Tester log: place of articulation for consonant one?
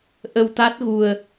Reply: glottal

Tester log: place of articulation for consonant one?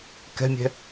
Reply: velar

